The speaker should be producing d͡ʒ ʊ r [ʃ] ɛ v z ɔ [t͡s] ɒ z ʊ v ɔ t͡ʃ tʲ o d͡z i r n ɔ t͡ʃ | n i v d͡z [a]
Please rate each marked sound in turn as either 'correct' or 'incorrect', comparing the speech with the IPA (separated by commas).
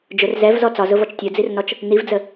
incorrect, correct, incorrect